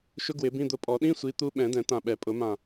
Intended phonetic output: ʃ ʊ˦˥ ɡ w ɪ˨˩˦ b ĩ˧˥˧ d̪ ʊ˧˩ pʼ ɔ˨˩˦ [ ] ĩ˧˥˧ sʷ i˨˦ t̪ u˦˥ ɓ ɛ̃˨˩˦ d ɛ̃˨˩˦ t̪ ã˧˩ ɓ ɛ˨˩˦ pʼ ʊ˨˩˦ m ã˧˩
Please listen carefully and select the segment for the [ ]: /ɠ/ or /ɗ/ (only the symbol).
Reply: ɗ